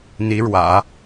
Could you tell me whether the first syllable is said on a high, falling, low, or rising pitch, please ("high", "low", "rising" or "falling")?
rising